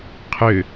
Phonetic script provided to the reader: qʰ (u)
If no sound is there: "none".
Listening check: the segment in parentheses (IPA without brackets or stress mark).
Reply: ø